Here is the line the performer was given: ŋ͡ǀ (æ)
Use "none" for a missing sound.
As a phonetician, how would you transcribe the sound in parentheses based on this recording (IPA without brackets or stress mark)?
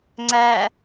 æ